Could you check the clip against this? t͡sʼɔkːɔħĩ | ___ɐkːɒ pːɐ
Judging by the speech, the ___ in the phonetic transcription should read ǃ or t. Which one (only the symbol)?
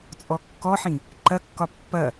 ǃ